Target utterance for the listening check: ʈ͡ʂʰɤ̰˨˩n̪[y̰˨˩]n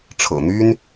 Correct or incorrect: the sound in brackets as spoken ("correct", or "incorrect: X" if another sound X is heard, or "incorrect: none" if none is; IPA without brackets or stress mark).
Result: incorrect: y˥